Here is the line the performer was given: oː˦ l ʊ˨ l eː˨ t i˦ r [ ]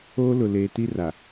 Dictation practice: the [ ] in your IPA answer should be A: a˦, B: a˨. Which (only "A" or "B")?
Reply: B